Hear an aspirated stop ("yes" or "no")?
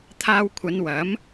yes